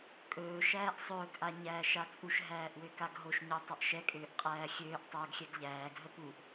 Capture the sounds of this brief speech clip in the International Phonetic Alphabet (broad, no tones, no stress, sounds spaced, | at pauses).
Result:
kʼ ɵː ʃ æː ʔ sˤ ɵː ɡ ʔ a ɲ æː ʃ a t͡sʼ u ʃ ɦ æː ʔ w ø k a ɡ ɦ o ʃ ɲ o tˤ ə ʔ ʃ ɛ kʼ øː ʔ qʼ æː xʲ øː ʔ tˤ ɵː ɡ xʲ ɛ ɡ ʎ æː ɡ ɦ ə p u ʔ